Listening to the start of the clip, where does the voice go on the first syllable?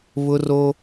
high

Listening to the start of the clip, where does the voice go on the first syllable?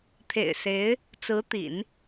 low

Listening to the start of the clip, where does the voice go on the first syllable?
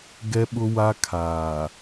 high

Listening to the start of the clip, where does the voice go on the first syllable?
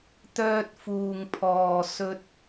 high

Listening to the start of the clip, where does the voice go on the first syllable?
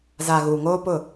low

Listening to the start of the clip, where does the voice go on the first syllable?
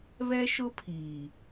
high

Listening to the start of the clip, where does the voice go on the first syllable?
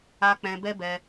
high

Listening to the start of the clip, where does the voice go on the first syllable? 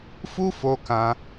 high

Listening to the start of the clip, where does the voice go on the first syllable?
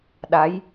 rising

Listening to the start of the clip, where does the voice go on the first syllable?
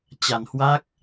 low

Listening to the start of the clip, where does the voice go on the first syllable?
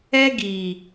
high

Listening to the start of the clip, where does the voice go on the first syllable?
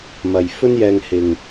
low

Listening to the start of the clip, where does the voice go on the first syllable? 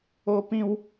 high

